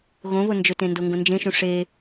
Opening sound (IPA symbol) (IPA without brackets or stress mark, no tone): ɣ